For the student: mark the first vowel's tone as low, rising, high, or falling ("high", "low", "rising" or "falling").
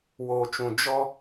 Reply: low